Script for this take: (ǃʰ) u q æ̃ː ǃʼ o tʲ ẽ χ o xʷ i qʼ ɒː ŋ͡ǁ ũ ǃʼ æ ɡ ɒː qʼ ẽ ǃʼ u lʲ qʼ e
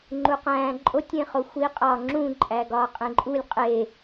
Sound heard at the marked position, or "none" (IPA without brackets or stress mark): ŋ͡ǃ